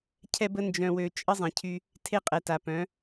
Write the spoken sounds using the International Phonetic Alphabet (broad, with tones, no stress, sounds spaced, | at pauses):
cʰ ɛ˧ b ə˧ n d͡ʒ œ̃˨ w ø˨ t͡ʃʼ ə˦ zˤ ẽ˨ cʰ y˧ | tʰ e˦ qʼ ɛ˨ t a˨ p œ̃˨˦